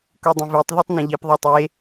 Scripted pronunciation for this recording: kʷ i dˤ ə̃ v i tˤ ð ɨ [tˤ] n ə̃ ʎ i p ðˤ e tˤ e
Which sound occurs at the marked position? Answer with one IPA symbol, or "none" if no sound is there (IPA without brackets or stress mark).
tˤ